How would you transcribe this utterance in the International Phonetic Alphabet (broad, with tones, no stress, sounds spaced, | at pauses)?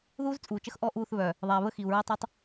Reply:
ð uː˦ z t͡sʼ uː˨ t͡ʃ ə˦ x ʔ ɔ˦˨ ʔ uː˦˨ θ β œ˨ | ðˤ ɛː˨ β ə˦ x i˨ u̯ ɹ əː˦ tˤ u˦ tˤ